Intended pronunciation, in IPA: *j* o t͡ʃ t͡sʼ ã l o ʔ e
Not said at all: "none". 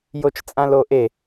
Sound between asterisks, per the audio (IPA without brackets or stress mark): j